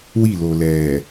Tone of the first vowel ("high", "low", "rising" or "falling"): falling